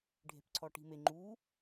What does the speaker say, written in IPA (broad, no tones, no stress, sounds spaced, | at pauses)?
ɖʱ e̤ p ǀʰ ɔ ʈ i̤ m e ŋ͡ǃ u